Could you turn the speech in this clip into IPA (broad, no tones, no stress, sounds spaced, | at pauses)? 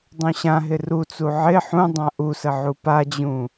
dˤ ũ ɕ ã ɦ ɪ r u t͡s u ʕ ɪ ħ ũ dˤ ã ʔ u s ə ʕ u p a d͡ʑ ũ